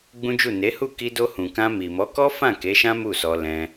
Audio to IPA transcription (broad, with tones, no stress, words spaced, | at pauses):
ɡ͡bũ˦d͡ʒu˦˨ ne˨˦hu˦˨ ki˧do˧hũ˨kã˧ mi˨mɔ˨˦kɔ˦fã˦˨ ke˨˦ʃã˦ mu˦˨sɔ˧ lɛ̃˧